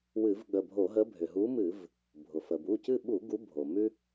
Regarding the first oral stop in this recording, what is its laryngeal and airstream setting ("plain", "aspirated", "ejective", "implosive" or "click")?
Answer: implosive